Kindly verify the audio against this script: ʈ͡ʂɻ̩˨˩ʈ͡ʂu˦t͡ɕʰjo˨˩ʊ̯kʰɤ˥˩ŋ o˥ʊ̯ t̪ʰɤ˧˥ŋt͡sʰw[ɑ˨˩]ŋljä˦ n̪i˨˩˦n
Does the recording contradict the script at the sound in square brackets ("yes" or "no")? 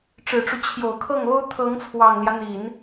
no